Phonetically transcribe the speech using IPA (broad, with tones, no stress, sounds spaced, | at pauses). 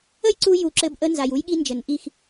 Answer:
ə˦ j ǀ u˧ j u˨ ǁ ɘ˧ b ʔ ə˧ n z a˨ j u˧ j ɠ i˧ n d͡ʒ ɘ˨ n ʔ i˦˨ x